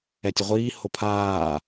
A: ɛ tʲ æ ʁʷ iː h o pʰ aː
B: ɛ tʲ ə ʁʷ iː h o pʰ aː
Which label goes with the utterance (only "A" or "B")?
B